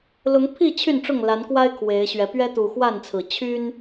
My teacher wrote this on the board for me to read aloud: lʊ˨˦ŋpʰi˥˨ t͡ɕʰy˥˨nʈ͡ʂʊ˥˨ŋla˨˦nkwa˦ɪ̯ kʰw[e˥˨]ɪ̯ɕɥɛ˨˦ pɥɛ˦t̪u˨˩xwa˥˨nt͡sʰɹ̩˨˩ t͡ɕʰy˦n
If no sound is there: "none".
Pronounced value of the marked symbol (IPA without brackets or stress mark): e˨˦